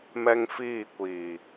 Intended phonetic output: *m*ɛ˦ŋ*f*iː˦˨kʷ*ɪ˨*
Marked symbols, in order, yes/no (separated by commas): yes, yes, no